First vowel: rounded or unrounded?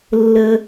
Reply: unrounded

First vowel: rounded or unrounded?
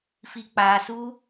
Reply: unrounded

